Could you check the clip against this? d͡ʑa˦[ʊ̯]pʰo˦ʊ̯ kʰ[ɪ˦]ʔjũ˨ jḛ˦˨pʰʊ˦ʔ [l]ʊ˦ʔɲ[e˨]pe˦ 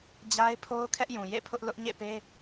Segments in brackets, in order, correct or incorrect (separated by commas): incorrect, incorrect, correct, incorrect